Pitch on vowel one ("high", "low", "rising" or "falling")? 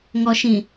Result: low